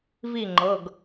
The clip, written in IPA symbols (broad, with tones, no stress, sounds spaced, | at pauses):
v i˥˨ ŋ͡ǃ ɤ˩˧˩ ɡ